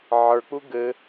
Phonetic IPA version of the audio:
ʕ ə˞ k͡p u ɡ ɘ

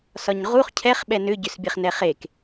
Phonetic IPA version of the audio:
s ɒ ɲ ʁ u χ cʰ ɛ χ ɓ ɛ n ʏ ɟ ʏ s bʲ ɛ χ n ɛ χ e k

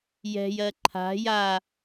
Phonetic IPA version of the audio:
j ɛ̤ j ɜ ǃʰ a̤ j a

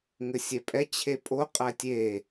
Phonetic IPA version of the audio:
ŋ ɘ sʲ ɛ pʼ ɛ t͡ɕʰ e pʼ o qʼ æ tʲ e

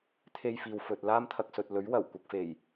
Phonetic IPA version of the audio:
t̪ʰ e˥ j f iː˧ w f ɵ˧ t̚ l aː˥ m t̪ʰ ɐ˧ k̚ s ɵ˨ t̚ l ɵ˨˥ ɥ w ɐ˨˩ w kʷ ɐ˧ k̚ f e˨˩ j

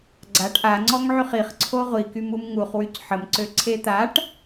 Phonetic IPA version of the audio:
ɡ͡ǀ a ʈ ʔ a ŋ͡ǀ ɔ ŋ ʕ y χ i χ ǀʰ o ʁʷ i k y m u m ŋ u χ w y c ħ ə m ǀ ø ǀʰ e t̪ a ʈ

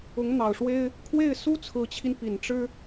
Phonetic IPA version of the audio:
ʊ˧˥ ŋ n̪ ɑ˨˩ ʊ̯ ʂ w e˥ ɪ̯ | kʰ w e˥˩ ɪ̯ s u˥ t͡sʰ ɹ̩˧˥ t͡ɕʰ i˧ n p i˨˩ n ʈ͡ʂ ɻ̩˥

